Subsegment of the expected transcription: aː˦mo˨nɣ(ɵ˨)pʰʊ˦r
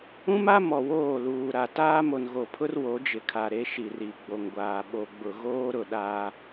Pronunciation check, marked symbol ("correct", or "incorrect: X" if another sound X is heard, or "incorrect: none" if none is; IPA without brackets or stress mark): incorrect: o˨